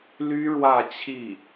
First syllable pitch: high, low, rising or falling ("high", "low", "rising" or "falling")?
high